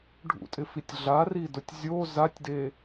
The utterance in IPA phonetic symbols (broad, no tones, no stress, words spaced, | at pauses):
ɖʱṵtʼɪfitʲ ɮaridʊtʲ zʲo zatʲde